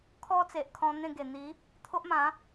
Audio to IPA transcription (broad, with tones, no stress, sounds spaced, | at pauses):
kʰ ɔ˦ t͡s e˨ ʔ kʰ ɔ̃˧ n̪ ẽ˥˧ ɡ e˨˩ n̪ i˨˦ | t̪ʰ o˦ ʔ m ã˨˦